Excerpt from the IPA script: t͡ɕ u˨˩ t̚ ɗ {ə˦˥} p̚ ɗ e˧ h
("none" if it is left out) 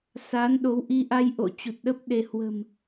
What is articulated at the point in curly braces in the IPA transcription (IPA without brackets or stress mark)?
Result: ə˦˥